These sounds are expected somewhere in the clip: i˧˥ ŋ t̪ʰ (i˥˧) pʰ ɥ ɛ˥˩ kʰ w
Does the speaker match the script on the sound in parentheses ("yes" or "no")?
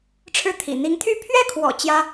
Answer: no